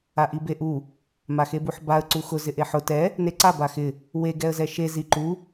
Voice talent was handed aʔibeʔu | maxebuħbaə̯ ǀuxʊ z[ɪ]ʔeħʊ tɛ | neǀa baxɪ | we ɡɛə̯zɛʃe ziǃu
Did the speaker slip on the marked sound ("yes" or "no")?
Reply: no